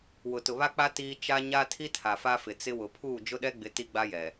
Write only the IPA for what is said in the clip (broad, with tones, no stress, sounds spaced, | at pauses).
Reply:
w ʊ˨ t ʊ˨ β a˦ k͡p a˦ t iː˦ t͡ʃ a˦ ɲ a˦ tʰ i˦ tʰ a˨ f a˦ f ɪ˨ t͡s ɪ˦ w ʊ˨ pʰ uː˦˨ d͡ʒ ʊ˦ ɗ ɛ˦ ɡ͡b ɪ˨˦ t i˦ ɡ͡b a˦ j ɛ˨